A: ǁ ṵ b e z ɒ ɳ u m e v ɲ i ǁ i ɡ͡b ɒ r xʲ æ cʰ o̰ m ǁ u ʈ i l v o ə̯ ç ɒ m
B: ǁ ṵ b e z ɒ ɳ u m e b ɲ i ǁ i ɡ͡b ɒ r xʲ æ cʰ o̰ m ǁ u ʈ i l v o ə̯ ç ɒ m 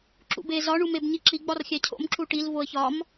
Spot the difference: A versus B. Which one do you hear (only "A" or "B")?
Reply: B